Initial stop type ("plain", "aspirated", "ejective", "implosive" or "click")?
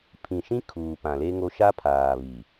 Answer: aspirated